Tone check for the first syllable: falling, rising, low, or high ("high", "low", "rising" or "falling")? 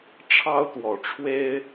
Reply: high